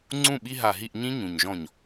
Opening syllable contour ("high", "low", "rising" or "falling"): falling